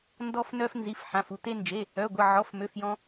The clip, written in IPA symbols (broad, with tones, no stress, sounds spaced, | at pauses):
n d ɔ˧ f n œ˧ f n z i˩˧˩ f ħ ã˩˧˩ f u˧ t̪ e˧ n d͡ʒ e˩˧˩ | œ˩˧˩ ɡʷ ə˩˧˩ ʕ ɔ˩˧˩ f m ø˩˧˩ f j ɔ̃˧